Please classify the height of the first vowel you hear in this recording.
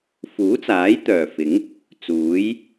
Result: high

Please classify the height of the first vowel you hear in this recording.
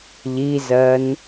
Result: high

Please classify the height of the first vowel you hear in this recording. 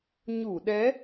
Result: high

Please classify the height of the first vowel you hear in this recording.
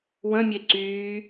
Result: mid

